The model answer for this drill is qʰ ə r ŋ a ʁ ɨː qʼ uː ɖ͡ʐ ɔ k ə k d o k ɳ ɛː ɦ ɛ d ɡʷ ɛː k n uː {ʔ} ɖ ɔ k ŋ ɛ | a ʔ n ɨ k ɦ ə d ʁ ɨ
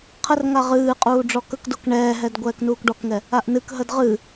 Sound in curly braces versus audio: incorrect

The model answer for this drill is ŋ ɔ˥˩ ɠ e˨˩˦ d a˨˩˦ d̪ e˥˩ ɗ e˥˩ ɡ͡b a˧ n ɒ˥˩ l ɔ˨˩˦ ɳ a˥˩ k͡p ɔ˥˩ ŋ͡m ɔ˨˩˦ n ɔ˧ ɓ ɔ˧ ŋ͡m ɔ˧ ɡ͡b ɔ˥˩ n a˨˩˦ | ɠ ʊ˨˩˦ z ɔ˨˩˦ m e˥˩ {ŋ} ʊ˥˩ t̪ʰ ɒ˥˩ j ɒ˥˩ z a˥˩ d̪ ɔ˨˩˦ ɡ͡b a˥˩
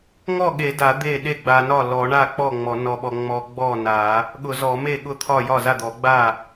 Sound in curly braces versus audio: incorrect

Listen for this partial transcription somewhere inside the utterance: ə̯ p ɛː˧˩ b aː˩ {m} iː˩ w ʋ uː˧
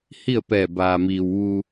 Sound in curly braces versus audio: correct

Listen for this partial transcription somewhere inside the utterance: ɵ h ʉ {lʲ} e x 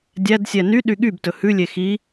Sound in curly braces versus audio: correct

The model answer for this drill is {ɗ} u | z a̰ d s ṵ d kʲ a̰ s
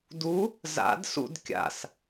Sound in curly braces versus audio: incorrect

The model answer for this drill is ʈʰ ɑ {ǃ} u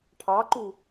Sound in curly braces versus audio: correct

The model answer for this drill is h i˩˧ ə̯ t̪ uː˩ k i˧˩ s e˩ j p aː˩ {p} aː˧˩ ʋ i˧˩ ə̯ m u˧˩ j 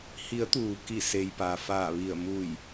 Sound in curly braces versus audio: incorrect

